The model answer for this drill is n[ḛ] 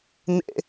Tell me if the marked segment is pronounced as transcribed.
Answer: yes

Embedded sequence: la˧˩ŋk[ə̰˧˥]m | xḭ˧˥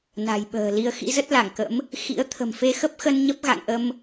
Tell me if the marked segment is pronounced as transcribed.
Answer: yes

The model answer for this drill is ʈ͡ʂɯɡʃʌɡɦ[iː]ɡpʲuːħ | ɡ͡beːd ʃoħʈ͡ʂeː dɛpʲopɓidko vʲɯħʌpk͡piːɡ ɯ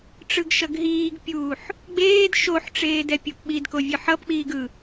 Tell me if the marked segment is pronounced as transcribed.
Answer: yes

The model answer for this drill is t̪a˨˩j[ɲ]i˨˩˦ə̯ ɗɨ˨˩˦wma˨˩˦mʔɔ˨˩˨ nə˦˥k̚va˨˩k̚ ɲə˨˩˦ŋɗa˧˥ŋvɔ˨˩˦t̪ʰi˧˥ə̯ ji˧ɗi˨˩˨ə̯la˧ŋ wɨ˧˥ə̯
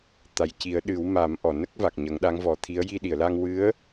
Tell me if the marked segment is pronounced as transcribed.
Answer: no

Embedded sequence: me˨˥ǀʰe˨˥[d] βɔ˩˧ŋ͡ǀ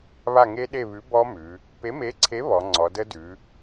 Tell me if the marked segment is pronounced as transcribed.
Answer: no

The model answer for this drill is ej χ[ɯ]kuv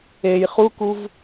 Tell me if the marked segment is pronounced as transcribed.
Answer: no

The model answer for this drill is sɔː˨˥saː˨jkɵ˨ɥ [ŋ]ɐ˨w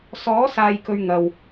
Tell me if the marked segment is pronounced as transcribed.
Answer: yes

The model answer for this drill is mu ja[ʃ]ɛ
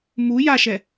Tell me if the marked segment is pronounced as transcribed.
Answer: yes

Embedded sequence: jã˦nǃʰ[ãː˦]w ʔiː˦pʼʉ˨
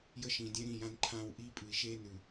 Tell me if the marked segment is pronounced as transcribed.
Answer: yes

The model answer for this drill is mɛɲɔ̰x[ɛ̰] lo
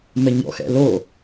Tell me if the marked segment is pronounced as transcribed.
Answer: yes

